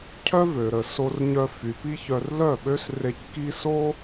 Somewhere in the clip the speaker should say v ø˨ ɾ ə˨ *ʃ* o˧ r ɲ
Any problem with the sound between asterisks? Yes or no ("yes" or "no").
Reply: yes